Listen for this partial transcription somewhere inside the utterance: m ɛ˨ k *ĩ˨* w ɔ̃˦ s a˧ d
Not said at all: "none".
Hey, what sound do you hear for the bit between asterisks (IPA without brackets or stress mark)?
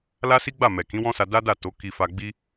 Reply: ĩ˨˦